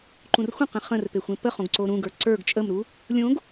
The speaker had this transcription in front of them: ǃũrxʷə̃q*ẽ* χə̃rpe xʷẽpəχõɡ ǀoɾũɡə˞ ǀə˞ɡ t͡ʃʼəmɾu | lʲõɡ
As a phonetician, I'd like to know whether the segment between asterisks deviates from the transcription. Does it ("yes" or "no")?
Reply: no